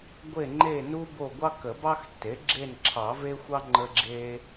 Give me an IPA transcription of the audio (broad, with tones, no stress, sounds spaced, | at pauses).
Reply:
ɡʷ e˦˨ ŋ͡ǃ e˦˨ n u˦ b o˦˨ ɡʷ ɑ˦ k ə˨˩˦ b ɑ˦ x tː e˩˥ ɡ͡ǁ e˦˨ n ǁʰ ɑ˨˩˦ v e˦ xʷ ɑ˦ ŋ͡ǃ ə˦ ɡ͡ǁ e˦